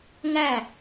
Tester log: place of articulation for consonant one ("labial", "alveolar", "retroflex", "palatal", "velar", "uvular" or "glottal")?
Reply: velar